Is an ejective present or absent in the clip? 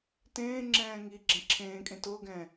present